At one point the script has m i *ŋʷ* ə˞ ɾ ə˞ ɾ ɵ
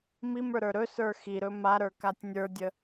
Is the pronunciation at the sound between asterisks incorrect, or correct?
incorrect